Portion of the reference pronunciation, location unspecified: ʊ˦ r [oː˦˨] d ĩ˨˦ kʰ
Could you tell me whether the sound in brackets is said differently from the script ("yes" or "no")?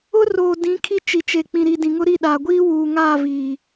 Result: yes